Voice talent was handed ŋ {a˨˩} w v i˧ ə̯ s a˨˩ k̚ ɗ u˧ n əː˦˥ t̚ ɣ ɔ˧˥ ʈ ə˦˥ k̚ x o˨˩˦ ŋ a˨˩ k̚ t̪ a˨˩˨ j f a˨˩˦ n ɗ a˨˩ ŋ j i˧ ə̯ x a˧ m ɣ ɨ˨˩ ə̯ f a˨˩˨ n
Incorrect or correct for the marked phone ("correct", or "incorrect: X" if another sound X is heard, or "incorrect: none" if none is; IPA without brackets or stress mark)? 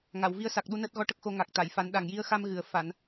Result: incorrect: a˨˩˨